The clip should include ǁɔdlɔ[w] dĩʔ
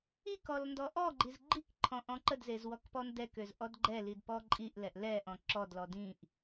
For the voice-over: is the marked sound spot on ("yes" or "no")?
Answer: no